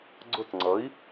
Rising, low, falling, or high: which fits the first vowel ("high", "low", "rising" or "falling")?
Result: falling